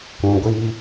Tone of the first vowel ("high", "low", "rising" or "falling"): low